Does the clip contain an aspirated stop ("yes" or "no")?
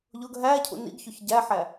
yes